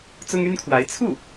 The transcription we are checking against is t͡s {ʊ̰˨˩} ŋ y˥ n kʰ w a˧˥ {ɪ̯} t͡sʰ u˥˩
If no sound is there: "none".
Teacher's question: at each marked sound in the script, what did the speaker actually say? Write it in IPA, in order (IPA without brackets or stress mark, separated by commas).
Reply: ʊ˥, ɪ̯